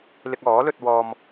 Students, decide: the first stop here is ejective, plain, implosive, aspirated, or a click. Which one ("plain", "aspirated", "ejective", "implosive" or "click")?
plain